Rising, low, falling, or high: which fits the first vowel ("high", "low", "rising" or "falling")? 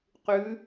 rising